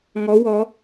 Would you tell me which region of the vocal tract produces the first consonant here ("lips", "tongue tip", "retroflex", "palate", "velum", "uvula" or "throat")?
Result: velum